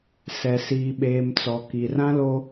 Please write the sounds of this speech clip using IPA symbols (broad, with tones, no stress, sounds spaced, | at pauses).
s ɛ˨ s iː˨ ɓ eː˨ m t͡s ɔ˨ k i˨ r ã˦ l o˦